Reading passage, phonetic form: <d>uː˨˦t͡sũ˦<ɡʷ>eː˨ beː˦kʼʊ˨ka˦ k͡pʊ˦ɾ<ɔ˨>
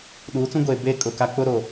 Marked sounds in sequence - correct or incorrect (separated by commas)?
incorrect, correct, incorrect